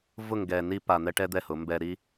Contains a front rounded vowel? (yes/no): no